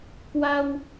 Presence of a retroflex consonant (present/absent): absent